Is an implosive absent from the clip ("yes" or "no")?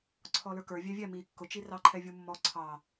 yes